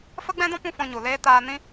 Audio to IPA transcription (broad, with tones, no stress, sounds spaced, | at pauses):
f ə˦ ɡ͡b ɛ̃˦ d ɔ̃˦ p ũ˦ f ɔ̃˧ ɲ u˨ l eː˦ t aː˧ n ĩ˦